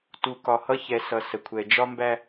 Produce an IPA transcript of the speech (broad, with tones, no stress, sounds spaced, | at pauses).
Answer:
t u˨ k ɒ˨ h ʌ˦ ç ɛ˨ s ʌ˨ s ə˨ kʷʰ ɛ˨ d͡ʒ ɒ˦ m b æ˦